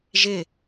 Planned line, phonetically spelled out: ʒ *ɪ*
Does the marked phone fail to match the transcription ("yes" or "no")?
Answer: no